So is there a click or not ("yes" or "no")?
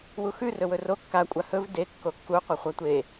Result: no